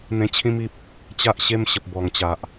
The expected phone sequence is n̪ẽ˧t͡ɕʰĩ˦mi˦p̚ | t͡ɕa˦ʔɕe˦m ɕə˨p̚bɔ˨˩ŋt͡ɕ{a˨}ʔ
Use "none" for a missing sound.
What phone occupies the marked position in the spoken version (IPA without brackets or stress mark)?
a˨